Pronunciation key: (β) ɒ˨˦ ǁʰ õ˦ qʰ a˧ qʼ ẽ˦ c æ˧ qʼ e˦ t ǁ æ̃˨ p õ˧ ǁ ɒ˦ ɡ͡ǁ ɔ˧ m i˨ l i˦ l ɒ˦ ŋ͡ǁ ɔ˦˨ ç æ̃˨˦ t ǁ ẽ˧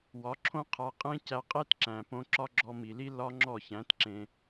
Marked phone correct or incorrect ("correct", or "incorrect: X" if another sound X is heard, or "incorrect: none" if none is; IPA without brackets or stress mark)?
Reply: incorrect: w